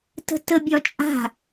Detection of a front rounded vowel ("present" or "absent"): absent